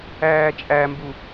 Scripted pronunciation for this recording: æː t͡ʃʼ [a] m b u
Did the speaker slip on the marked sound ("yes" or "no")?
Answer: yes